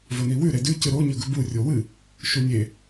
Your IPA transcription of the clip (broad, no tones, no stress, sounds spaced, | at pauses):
v ɵ n i w ʉ ɾ e d ʉ c ɨ ɾ o ɲ ɵ ɡ ɵ b u rʲ o w ɨ | ʃ u nʲ e